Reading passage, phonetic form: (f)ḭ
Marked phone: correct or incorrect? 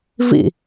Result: incorrect